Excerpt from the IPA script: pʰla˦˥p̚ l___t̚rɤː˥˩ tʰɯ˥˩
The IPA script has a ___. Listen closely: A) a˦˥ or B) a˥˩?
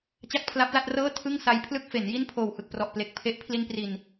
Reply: B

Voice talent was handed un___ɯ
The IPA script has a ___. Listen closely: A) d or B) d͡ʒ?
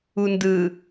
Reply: A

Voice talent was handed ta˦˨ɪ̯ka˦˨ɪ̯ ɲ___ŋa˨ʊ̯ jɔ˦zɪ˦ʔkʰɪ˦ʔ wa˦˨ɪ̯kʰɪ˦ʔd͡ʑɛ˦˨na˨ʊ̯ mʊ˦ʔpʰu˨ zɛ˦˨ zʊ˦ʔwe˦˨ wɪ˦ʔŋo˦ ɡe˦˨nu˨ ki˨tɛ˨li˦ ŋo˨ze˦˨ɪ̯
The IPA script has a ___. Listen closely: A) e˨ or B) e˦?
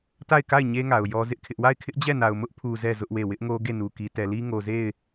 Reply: B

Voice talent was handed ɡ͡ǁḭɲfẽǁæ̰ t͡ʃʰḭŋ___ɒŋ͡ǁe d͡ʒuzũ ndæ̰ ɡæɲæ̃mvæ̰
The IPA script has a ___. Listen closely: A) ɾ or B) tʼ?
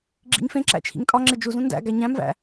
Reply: B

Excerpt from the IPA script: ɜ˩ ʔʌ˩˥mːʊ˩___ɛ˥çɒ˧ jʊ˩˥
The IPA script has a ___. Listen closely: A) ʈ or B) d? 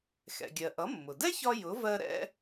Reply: B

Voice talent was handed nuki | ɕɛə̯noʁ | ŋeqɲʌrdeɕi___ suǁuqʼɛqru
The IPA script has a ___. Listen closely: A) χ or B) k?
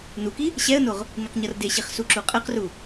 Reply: A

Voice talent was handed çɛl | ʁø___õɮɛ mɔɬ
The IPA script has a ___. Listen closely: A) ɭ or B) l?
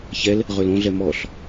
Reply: B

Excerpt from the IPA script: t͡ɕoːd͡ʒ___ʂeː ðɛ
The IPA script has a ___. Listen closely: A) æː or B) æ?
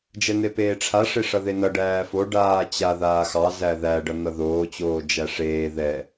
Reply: B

